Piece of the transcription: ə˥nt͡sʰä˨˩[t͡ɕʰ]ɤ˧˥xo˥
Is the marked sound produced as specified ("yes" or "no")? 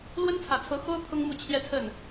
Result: no